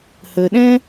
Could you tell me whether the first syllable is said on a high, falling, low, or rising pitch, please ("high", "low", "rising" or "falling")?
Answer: low